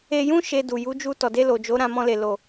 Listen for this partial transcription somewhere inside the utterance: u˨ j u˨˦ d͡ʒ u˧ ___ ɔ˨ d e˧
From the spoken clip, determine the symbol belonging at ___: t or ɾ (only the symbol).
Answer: t